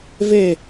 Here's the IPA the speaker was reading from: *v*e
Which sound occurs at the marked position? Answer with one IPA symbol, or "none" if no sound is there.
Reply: v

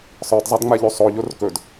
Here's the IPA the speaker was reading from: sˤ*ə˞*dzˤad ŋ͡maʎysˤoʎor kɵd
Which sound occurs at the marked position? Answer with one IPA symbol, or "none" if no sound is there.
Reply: ə˞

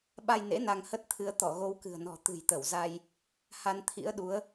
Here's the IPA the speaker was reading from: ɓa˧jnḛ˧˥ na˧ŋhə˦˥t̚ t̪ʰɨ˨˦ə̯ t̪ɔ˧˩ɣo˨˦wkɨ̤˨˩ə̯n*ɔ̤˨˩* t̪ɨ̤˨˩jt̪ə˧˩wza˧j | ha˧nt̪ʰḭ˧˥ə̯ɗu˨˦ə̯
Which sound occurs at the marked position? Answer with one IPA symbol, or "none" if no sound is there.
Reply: ɔ̤˨˩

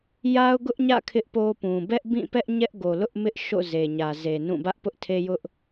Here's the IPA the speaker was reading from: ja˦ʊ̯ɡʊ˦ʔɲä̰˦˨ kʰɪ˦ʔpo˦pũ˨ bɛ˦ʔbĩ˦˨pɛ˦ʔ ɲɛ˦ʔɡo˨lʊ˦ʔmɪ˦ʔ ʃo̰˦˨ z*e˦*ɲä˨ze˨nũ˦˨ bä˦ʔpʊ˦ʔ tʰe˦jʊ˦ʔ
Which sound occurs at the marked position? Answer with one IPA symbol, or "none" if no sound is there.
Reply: e˨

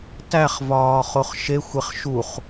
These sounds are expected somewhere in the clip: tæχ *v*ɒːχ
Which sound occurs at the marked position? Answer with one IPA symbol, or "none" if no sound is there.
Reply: v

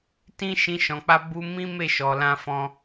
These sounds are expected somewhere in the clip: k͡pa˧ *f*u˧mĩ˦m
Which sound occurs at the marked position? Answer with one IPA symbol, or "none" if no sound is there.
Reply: b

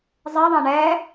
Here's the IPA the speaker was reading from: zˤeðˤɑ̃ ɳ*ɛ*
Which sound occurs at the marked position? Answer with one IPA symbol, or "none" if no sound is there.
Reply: ɛ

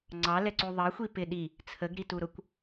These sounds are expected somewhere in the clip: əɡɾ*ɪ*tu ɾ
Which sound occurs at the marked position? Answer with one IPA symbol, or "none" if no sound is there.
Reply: i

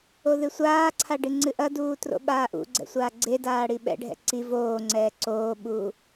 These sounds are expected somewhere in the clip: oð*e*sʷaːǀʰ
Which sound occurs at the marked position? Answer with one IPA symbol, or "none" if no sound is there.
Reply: ɨ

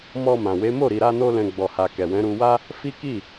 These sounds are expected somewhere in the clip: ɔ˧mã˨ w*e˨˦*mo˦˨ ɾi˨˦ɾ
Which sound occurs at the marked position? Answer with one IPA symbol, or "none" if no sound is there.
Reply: e˨˦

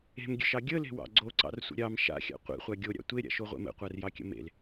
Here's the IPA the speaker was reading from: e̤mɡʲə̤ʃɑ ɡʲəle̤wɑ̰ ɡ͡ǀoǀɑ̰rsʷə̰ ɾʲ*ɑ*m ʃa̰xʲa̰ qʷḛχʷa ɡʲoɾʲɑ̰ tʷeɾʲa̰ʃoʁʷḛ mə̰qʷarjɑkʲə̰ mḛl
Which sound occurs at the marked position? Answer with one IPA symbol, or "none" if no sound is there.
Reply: ɑ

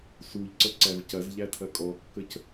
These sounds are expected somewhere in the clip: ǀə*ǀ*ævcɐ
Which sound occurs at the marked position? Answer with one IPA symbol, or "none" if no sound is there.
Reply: ǀ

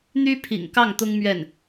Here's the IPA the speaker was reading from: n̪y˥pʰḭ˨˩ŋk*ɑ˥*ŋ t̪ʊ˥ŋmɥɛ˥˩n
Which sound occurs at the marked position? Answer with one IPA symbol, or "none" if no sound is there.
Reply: ɑ˥˩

